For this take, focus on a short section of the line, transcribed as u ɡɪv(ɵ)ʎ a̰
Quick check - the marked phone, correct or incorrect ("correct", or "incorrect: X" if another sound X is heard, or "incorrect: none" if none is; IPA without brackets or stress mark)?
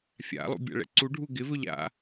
correct